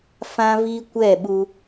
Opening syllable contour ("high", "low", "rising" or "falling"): high